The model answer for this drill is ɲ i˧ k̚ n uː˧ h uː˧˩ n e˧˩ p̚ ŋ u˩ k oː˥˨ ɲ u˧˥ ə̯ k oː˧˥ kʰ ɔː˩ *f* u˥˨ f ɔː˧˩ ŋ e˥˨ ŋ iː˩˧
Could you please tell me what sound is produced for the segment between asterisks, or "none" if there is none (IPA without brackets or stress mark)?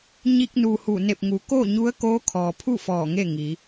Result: pʰ